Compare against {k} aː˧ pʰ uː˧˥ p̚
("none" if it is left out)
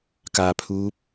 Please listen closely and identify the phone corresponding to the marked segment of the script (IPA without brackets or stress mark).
k